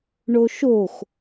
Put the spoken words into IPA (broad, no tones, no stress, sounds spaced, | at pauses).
ɳ o ʃ o x